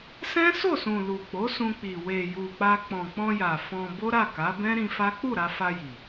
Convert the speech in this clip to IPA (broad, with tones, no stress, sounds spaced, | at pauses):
s ɛ̃˦ s o˦˨ s ũ˨ l u˨ k͡p o˨˦ s ũ˧ k͡p i˨ w e˨ j u˨ k͡p a˧ k͡p ɔ̃˨ k͡p ɔ̃˧ j a˨ f ɔ̃˧ b o˦ ɾ a˦˨ k a˨˦ b ɛ̃˦ ɾ ĩ˧ f a˦ k͡p u˦˨ ɾ a˧ f a˧ j i˨